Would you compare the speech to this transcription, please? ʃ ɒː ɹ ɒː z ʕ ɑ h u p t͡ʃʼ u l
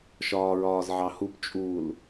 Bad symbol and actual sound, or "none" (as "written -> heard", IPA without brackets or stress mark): none